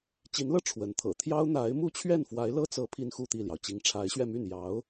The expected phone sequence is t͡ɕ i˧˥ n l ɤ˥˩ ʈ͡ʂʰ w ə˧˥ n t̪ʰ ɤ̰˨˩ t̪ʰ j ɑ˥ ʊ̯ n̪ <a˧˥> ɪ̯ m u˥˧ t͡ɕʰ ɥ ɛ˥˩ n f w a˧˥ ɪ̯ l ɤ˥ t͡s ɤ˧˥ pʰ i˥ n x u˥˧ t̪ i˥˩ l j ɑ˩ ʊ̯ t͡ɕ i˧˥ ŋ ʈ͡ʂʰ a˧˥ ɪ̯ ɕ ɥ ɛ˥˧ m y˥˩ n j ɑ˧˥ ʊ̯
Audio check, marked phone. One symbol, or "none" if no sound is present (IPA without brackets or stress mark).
a˧˥